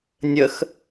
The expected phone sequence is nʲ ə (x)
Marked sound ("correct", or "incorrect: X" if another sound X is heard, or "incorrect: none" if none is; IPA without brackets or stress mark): correct